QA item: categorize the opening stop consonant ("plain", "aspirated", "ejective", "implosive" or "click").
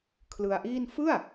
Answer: aspirated